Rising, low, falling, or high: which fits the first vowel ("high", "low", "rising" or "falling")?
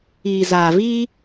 low